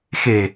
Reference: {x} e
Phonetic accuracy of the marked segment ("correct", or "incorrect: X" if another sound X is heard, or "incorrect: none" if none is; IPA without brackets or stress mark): correct